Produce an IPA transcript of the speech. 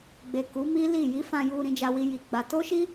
ɡ͡b e˨ k u˨˦ m i˦ l i˦˨ j i˨˦ f ã˧ j u˧ ɾ ĩ˧ d͡ʒ a˧ w i˧ j i˨ ɡ͡b a˧ t o˦ ʃ i˦

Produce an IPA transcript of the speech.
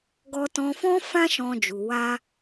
ɡ ɔ˧ t ɔ̃˧ f ɔ̃˦ f ã˦ ʃ ɔ̃˧ d͡ʒ u˨ w a˧

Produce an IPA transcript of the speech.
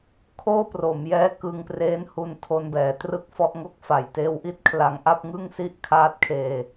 kʰ oː˥˩ p r o˩˦ m j ɛː˦˥ k ɯ˧ ŋ p r eː˦˥ n h u˧ n tʰ o˧ n b ɛː˩˦ t r ɯ˥˩ k̚ f ɔ˥˩ ʔ ŋ o˥˩ k̚ f a˨˩ j t eː˧ w ʔ i˥˩ t̚ kʰ l a˧ ŋ ʔ a˥˩ p̚ ŋ ɯ˥˩ ŋ s i˥˩ ʔ kʰ aː˦˥ t̚ kʰ eː˧

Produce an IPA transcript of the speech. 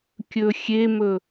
kʲ ɵ xʲ e m ɵ

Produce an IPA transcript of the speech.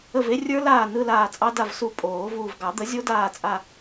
ə˦˨ v e˦˥ rʲ ə˞˦˥ l aː˦˨ n ɯ˧˥˧ l aː˦˨ t͡sʼ ɑ˦˥ d a˦˨ v s u˦˨ pʼ oː˨˩˦ v uː˨ v ɡ ɑ˨˩˦ d̪ ə˩˥ zʲ o˦˥ d aː˦˨ t͡sʼ a˦˨

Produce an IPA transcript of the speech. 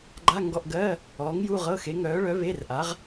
ɡ͡ǃ a˧˥˧ ŋ ɡ ɔ˧˥˧ ʔ ɡ ɜ˧˥˧ | ɔː˨˥ ŋ j u˧˥˧ ʁ ɤ˧˥˧ x e˨˥ ŋ œː˨˥ ɭ œ˨˥ β e˧˥˧ r ʔ a˨˥ ʁ

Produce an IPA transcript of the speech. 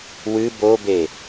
w ɨ b o b e

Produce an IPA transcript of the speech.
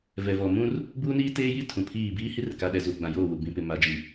v ɛ˨ v ɔ˨ m ũ˦ r | b uː˦ n iː˦ t eː˦ j i˦ tʰ ũ˨ pʰ iː˦˨ b iː˦ h i˦ r k a˨ ɗ ɛ˨ z u˨ ɡ͡b ã˨ j oː˦˨ w u˨ b ĩ˨ p ɪ˨ m a˨˦ d͡ʒ i˨

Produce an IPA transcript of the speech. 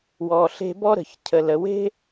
w ɔ˩ ɬ e̤˧ b ɔ˥ ɾ ə̤˩ ç cʰ ə˩ l ə˩ w e̤˥

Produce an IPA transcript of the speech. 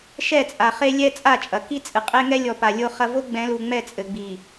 ʃ ɛ˦˨ t͡sʼ a˨ χ e˦ lʲ ɛ˦ t͡sʼ a˦˨ t͡ʃʼ ɐ˨ k i˦ t͡sʼ ɨ˨ qʼ e˦ ŋ ɛ˦ lʲ ɔ˨ p a˨ lʲ o˦ χ ɐ˦ v o˦ ɡ͡b ɛ̃˨˦ l u˨ ŋ͡m ɛ˦˨ t͡sʼ ɘ˨ ɡ͡b i˨

